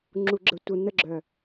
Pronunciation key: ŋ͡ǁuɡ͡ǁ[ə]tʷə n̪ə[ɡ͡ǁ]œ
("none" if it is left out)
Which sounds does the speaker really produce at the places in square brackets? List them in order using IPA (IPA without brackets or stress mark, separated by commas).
ə, ɡ͡ǁ